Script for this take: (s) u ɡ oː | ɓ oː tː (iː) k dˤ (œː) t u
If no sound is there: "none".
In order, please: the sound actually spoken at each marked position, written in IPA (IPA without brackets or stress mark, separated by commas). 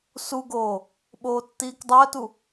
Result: s, iː, œː